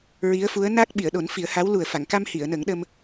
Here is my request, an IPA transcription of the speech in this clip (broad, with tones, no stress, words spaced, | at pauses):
ɹi˧˥ə̯fu˧˥ə̯ na˦˥k̚ ɓi˨˩˨ə̯ɗo˨˩˦nfi˨˩˦ə̯ha˧˥w lu˨˩ə̯fa˨˩˨ŋka˧m hi˨˩˨ə̯nə˨˩˦ŋɗə˧m